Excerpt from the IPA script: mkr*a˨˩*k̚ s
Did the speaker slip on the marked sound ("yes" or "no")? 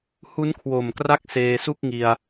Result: yes